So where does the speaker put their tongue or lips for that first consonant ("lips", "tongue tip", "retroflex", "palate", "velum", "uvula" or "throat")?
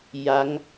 palate